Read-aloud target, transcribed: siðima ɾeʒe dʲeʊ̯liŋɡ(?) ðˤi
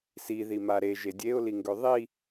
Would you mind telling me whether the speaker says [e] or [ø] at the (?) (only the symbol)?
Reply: ø